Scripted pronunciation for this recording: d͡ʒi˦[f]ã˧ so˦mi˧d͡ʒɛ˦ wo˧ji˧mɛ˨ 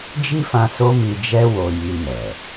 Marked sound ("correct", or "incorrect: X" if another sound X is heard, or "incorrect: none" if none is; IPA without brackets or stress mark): correct